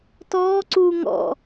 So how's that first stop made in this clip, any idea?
plain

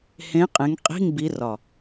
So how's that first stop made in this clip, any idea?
ejective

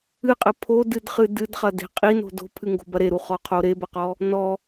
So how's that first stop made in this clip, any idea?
ejective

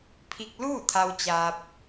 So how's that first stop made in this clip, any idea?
aspirated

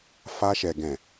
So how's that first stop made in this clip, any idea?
plain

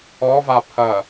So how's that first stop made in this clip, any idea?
aspirated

